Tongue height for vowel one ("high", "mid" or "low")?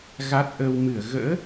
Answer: low